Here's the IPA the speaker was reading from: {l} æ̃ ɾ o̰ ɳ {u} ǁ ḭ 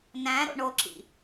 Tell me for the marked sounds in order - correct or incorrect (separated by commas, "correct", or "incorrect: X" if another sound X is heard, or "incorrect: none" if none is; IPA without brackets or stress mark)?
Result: incorrect: n, incorrect: o